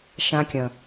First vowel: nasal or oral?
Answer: nasal